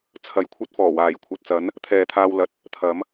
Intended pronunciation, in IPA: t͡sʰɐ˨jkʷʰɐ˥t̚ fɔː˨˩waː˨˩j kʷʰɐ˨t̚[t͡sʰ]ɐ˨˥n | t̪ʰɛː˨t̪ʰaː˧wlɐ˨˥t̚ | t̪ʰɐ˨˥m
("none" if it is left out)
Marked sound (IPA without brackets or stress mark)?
t͡s